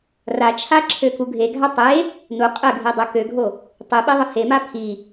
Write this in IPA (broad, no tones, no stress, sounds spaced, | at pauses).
r a t͡ʃʰ a ǁʰ ø k u ɡʱ e ɡʱ a tˤ e | n u qʼ ə ɡʱ i dˤ ø k ø ɡʱ o | tˤ i ɓ e ðˤ ə h e m a pʰ i